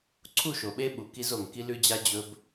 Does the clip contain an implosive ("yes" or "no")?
yes